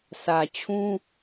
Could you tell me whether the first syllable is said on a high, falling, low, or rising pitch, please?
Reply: low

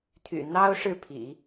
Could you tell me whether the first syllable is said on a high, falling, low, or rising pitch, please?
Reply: low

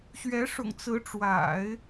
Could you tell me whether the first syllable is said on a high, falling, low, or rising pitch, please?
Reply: rising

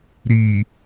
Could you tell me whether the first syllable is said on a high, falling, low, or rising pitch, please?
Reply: low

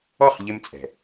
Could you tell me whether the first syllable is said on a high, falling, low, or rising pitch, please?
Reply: falling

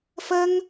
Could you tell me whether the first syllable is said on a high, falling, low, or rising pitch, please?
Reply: high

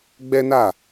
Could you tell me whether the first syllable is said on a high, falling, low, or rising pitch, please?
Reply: high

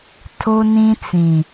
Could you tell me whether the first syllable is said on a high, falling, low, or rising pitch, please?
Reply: high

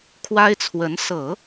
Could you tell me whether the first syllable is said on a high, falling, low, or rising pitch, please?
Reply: high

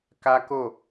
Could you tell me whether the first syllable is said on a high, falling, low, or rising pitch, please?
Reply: high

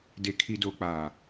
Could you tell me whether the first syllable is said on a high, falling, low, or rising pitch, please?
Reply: low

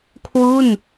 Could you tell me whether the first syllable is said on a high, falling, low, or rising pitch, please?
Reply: falling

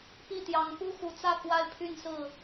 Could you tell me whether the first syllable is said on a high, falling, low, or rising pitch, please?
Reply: falling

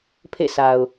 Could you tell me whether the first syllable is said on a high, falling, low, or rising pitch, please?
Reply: falling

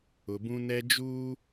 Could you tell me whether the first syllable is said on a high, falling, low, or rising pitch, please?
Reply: low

